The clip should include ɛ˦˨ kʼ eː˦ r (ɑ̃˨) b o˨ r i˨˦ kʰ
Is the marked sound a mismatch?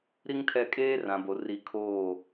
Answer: yes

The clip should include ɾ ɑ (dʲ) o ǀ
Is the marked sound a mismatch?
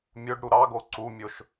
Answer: yes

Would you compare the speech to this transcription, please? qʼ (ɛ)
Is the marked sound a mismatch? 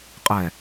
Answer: no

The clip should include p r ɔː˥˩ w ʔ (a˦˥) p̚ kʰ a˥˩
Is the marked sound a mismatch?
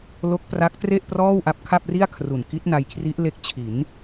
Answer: no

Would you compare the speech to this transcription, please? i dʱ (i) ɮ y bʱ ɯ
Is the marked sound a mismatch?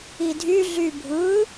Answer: yes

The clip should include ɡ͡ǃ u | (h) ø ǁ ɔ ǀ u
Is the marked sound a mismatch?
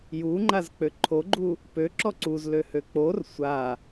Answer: yes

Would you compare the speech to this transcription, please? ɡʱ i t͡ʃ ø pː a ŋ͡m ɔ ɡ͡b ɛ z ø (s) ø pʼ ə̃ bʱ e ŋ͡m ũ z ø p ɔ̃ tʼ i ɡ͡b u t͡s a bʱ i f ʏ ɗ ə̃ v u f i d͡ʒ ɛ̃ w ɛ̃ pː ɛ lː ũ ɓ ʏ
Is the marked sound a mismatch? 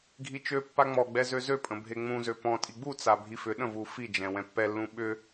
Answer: yes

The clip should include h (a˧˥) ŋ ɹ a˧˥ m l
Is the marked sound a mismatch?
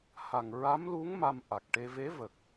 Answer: yes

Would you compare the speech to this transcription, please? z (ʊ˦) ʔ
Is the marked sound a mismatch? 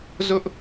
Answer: no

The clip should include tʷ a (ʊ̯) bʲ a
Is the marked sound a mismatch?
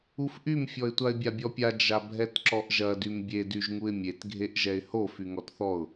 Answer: yes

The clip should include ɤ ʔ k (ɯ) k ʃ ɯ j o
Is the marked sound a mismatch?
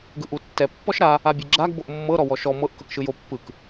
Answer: yes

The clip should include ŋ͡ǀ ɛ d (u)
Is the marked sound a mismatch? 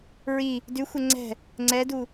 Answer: no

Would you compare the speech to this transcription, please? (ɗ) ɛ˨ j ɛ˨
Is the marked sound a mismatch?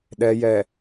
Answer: no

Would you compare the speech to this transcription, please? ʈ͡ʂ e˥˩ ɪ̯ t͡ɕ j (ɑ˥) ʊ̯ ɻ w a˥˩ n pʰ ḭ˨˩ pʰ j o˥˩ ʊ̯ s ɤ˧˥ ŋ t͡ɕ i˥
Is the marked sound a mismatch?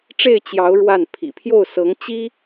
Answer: yes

